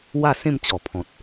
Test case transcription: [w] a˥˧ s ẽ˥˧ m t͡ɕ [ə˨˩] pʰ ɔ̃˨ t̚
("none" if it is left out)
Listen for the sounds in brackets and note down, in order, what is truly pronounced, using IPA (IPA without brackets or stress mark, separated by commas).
w, ɔ˨˩